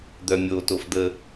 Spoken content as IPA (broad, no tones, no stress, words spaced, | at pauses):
d̪œmʲo tofd̪ə